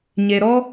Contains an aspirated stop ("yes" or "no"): no